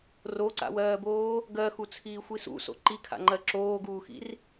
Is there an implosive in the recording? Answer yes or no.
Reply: no